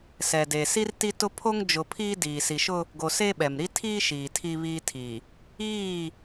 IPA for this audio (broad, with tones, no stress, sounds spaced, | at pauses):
s ɛ˨ d e˨ s i˦ r t i˦ t ʊ˦ pʰ o˦ ŋ d͡ʒ ʊ˨ pʰ iː˦ d iː˨ s i˨ ʃ ʊ˦ | ɡ o˨ s e˦ ɓ ɛ˨ m ɾ i˦ tʰ iː˦ ʃ iː˨ tʰ i˦ β iː˦ tʰ i˨ | iː˦˨